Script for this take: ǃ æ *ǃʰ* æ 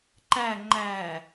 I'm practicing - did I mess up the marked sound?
yes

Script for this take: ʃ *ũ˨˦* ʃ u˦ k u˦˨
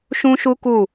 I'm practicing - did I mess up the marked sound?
yes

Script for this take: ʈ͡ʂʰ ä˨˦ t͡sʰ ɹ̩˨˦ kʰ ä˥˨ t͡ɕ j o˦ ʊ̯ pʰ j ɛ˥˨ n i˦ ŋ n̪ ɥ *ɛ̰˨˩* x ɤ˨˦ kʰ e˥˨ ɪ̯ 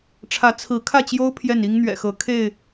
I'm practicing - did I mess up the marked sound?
no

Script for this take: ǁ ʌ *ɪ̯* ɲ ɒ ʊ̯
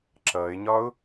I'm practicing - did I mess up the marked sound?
no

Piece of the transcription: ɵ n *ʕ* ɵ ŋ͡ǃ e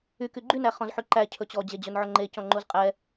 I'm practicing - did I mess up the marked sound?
no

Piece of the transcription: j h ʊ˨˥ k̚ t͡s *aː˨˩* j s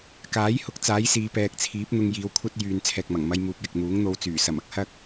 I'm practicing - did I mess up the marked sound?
yes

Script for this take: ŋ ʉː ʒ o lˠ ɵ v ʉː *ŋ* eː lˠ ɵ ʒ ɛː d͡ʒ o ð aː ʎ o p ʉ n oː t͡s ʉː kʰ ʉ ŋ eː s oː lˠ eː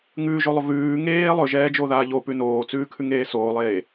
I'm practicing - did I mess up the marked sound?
no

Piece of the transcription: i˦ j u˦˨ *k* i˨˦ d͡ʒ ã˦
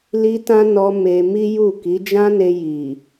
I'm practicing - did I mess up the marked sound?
no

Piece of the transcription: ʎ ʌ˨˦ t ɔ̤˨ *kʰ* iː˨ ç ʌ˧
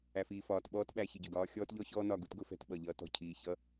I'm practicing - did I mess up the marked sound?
yes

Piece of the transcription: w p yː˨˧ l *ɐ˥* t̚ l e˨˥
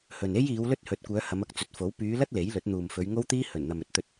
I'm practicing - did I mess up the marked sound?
no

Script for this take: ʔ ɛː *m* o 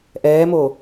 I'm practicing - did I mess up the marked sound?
no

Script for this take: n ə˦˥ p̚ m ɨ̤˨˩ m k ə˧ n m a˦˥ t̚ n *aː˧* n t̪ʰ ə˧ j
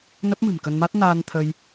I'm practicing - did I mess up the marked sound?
no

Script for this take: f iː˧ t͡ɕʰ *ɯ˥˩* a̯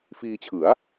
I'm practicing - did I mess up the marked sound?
yes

